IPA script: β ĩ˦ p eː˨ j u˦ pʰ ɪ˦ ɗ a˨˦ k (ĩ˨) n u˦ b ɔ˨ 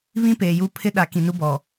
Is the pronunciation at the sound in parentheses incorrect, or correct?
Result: correct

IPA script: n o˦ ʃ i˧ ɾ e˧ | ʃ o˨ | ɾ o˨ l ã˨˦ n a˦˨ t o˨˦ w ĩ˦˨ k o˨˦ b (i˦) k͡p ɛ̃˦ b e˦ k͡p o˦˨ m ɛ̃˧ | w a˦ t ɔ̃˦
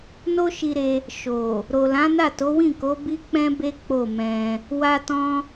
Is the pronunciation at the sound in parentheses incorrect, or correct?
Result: correct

